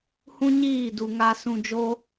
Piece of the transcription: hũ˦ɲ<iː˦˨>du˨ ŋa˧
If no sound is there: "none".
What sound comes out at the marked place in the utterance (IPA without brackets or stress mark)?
iː˦˨